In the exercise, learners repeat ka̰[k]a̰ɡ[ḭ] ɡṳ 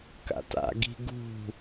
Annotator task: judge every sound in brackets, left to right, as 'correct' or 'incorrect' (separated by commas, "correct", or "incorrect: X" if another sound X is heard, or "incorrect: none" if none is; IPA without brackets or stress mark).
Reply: incorrect: t, incorrect: i̤